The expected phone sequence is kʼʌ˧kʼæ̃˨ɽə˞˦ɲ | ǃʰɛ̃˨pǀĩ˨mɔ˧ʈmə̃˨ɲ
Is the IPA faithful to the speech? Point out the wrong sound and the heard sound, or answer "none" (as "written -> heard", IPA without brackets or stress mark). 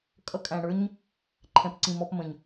ʈ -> p